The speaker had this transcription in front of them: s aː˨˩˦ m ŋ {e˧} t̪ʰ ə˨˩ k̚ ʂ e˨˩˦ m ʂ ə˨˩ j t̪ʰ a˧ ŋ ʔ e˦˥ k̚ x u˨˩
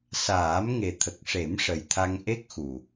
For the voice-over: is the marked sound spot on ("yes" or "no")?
no